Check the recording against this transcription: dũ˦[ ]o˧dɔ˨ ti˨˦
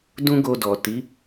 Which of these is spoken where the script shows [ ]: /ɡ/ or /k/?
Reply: ɡ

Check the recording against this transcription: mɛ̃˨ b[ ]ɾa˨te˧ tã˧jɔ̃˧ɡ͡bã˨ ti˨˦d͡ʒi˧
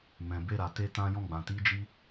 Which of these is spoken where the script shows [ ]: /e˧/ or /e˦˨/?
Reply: e˧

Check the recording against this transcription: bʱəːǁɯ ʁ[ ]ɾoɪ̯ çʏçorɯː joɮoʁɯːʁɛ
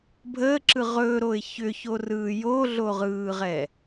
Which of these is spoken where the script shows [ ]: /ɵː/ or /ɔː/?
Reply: ɵː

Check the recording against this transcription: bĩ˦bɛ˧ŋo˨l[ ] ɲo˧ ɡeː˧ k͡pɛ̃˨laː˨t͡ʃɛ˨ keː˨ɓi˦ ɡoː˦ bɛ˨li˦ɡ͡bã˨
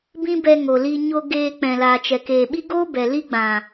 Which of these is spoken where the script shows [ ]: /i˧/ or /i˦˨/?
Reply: i˧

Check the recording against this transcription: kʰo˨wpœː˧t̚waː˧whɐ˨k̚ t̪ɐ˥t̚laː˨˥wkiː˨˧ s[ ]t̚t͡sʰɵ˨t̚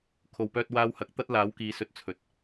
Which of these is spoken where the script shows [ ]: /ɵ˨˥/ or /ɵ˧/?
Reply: ɵ˨˥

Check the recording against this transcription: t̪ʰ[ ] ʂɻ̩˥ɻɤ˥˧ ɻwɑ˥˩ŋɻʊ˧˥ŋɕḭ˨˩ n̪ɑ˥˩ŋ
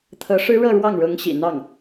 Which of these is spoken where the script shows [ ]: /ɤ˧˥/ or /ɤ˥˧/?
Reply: ɤ˧˥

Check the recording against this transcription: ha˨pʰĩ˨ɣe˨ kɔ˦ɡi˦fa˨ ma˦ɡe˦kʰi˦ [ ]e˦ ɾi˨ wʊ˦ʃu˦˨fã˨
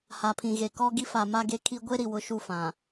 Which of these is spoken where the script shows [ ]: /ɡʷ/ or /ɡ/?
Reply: ɡʷ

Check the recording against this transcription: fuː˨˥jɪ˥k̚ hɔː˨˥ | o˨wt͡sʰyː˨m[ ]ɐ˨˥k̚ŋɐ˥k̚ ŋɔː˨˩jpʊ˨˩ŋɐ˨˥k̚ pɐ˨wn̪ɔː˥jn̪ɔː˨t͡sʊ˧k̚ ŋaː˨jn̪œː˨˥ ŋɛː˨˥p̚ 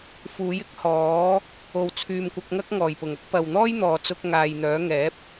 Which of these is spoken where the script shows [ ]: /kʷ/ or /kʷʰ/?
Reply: kʷ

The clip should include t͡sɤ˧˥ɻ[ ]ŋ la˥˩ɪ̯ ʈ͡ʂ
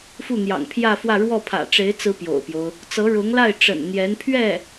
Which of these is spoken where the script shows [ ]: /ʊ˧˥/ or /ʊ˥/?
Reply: ʊ˧˥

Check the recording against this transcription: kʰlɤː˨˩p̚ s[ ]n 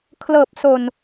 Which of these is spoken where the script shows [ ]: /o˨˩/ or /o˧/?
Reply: o˨˩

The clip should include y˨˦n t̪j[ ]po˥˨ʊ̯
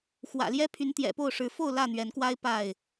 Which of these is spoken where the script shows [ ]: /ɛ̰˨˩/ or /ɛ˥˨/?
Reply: ɛ̰˨˩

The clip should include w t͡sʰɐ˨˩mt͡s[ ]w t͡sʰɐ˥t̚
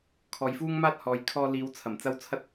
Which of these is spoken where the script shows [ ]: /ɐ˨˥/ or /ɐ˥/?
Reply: ɐ˥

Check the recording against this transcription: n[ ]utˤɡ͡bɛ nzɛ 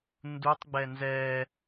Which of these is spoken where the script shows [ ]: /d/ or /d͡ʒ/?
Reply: d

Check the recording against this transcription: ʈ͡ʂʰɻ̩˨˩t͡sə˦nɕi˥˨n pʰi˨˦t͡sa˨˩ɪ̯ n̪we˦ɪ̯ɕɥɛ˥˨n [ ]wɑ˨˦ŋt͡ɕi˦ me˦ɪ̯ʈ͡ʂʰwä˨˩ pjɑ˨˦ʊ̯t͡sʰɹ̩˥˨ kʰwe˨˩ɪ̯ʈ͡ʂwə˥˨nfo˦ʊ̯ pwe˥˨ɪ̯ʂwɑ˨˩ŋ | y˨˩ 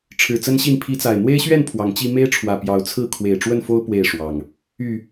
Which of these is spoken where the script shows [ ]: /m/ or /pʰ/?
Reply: pʰ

